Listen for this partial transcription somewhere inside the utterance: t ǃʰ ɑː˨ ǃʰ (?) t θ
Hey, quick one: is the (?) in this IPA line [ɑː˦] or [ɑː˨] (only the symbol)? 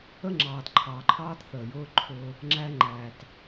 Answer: ɑː˦